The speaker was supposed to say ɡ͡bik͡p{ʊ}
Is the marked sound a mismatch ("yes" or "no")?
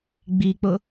no